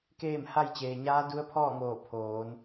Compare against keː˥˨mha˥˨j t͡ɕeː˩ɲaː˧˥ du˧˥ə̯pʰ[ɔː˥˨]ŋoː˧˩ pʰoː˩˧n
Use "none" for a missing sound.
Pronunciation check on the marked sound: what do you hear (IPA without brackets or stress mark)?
ɔː˥˨